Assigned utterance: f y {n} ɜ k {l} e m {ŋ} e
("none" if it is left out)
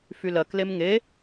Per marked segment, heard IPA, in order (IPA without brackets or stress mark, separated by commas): l, l, ŋ